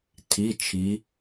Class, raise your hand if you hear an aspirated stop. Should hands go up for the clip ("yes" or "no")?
yes